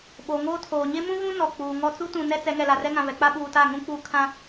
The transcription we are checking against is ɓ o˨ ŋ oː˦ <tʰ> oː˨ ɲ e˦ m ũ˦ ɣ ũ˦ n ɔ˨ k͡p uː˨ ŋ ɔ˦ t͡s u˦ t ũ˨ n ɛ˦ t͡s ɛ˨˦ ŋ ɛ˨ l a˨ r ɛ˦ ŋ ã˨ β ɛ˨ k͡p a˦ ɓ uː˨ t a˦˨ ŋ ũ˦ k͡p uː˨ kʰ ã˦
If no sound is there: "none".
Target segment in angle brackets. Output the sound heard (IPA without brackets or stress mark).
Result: tʰ